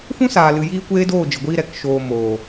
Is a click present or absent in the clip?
absent